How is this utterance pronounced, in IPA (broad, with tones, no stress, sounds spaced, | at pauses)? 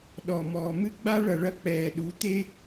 ɗ ɔ˨ m ɔː˨ m ɨ˦ ɡ͡b a˦ ɭ ɐ˨ ɭ ɐ˦ k͡p ɛː˨ ɗ u˨˦ t̪ e˦